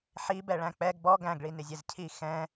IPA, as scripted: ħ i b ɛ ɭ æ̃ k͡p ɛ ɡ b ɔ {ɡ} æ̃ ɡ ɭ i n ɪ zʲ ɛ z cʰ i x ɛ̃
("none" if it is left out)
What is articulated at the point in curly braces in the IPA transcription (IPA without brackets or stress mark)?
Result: ɡ